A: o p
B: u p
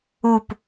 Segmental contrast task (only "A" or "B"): B